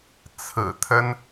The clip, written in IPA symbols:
t͡sʰɹ̩˨˩t̪ʰə˥n

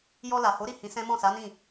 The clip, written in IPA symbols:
jɔ˧la˨ho˨˦ɾi˦˨ hĩ˨˦sɛ̃˦ mɔ̃˦˨sa˨˦nĩ˦˨

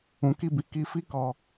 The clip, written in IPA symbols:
ũ˨ki˧bi˨ ki˧fi˦kɔ˧

